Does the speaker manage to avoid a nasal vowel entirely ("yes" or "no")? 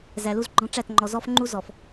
no